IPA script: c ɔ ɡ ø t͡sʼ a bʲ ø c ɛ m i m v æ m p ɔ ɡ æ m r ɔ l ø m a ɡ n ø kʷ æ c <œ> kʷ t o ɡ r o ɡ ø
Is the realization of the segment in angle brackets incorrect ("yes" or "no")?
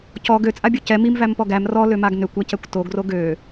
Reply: yes